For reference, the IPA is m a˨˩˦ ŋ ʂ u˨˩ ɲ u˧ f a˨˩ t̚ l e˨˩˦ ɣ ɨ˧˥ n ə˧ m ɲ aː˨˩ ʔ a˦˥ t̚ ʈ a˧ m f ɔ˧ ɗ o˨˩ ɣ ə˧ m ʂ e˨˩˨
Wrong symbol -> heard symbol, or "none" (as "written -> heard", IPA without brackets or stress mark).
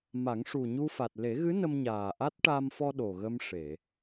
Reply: none